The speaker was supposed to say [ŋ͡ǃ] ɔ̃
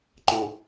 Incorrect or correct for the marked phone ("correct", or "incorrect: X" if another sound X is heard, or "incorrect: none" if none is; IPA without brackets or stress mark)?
correct